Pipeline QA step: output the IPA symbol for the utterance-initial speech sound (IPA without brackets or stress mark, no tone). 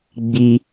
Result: ɡ͡b